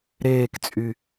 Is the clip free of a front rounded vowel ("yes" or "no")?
no